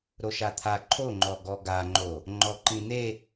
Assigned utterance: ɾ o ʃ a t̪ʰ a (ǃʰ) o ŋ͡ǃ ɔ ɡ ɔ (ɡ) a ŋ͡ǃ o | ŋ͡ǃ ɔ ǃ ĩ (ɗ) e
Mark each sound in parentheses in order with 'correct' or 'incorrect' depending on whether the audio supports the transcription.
correct, correct, incorrect

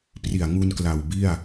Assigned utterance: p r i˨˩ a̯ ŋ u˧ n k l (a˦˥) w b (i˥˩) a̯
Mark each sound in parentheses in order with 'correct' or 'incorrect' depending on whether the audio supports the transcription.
incorrect, correct

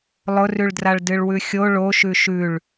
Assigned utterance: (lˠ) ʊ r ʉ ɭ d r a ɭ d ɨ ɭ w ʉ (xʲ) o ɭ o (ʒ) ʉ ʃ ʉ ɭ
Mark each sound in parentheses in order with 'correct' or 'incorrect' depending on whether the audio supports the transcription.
correct, correct, incorrect

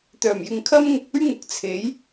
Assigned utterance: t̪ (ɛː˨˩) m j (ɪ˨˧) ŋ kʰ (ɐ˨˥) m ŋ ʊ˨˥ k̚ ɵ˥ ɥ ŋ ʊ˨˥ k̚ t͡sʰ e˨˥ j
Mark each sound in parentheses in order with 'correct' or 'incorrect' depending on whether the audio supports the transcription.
incorrect, incorrect, incorrect

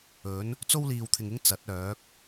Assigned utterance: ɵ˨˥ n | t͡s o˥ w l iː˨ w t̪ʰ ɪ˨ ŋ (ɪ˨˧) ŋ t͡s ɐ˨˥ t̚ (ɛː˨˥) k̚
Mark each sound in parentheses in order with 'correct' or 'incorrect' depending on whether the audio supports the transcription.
incorrect, incorrect

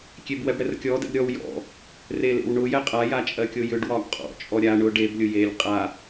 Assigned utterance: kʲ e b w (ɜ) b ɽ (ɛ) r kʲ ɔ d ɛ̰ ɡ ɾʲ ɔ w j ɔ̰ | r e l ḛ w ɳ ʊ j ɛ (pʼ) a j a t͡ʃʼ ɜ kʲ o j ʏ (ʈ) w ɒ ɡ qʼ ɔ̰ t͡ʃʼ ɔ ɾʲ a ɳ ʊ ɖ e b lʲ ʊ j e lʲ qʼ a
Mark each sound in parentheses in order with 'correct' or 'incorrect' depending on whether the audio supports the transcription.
incorrect, correct, incorrect, incorrect

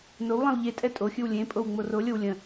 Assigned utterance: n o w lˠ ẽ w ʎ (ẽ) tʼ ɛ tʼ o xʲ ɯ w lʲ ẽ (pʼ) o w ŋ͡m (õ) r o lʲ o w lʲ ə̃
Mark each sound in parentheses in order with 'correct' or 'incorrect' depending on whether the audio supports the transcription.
incorrect, correct, incorrect

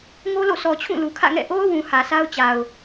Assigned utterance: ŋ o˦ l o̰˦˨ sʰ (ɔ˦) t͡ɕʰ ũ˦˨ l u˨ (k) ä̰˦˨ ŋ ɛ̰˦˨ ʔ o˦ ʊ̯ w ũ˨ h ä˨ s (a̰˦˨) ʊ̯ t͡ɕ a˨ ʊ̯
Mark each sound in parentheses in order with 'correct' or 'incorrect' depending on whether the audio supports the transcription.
incorrect, incorrect, incorrect

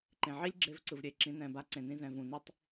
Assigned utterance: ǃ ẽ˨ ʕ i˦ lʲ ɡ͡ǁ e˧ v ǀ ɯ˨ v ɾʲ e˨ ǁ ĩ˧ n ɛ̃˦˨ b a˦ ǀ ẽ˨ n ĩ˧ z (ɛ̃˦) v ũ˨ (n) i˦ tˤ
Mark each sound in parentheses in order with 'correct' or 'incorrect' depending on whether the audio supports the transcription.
incorrect, correct

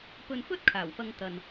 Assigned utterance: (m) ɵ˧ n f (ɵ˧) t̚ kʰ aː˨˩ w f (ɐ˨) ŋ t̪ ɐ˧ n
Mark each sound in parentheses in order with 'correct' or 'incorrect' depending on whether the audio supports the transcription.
incorrect, incorrect, incorrect

